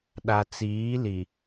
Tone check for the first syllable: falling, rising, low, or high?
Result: low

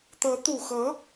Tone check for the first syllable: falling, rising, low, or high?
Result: rising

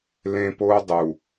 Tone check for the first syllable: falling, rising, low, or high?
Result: high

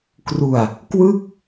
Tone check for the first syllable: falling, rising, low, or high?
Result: low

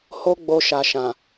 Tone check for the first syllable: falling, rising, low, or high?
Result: high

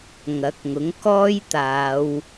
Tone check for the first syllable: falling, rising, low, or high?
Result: rising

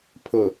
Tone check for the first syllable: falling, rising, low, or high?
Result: low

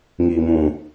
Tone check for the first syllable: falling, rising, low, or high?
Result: low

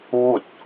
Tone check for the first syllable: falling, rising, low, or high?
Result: falling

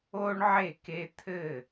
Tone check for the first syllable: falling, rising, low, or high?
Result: high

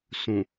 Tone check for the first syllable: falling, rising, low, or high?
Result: low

